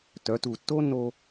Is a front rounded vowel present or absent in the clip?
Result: present